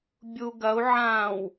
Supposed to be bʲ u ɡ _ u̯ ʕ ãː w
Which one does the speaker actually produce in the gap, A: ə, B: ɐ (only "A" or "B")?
B